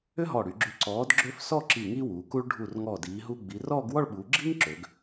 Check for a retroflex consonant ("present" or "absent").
present